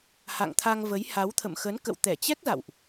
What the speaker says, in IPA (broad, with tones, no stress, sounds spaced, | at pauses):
h a̰˧˨ ŋ t̪ʰ a˧ ŋ v ə˨˦ j h a˨˦ w t̪ʰ ə̰˧˨ m x ə˨˦ n k ə̰˧˨ w t̪ ɛ˧˩ t͡ɕ ɛ˦˥ k̚ z a̰˧˨ w ʔ